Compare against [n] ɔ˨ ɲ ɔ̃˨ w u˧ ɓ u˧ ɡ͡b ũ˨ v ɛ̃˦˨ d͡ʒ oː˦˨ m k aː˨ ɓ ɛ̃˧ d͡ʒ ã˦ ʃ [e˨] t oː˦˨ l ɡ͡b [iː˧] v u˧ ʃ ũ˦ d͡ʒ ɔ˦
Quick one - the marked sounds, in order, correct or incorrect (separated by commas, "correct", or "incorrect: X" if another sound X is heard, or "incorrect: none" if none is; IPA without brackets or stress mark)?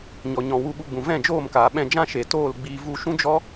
incorrect: ɲ, correct, correct